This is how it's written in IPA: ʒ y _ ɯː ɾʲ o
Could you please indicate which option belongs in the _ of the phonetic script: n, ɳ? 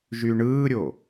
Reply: ɳ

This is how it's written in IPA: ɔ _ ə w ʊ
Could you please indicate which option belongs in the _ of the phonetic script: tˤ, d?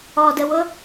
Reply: d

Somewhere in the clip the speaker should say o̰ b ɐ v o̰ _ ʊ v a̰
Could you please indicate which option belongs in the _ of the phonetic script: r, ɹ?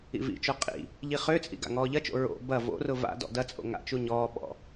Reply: r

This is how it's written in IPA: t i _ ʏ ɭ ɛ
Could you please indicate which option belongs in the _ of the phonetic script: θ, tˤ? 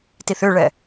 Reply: θ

